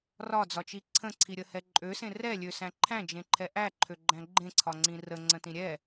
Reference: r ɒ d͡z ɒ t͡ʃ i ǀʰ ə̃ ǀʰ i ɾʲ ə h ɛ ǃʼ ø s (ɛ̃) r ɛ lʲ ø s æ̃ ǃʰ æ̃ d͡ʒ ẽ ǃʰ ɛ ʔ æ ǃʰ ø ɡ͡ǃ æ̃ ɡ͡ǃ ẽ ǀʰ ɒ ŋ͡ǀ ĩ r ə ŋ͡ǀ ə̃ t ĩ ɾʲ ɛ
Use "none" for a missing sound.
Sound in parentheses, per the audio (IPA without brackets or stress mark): ẽ